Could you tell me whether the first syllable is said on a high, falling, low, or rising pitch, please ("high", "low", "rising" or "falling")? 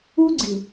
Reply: high